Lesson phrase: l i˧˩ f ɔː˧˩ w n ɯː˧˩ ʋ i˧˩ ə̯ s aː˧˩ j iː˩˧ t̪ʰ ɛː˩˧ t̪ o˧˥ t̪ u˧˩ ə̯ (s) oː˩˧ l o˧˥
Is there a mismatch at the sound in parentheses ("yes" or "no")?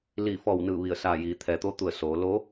no